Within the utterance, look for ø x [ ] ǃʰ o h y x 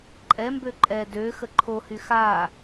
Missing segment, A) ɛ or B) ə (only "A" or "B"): B